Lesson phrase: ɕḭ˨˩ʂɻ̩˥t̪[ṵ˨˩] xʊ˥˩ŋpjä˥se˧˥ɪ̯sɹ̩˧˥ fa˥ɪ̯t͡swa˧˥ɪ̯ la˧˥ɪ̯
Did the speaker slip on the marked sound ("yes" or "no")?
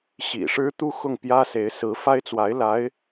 yes